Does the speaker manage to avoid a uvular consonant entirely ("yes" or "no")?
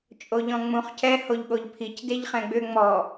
no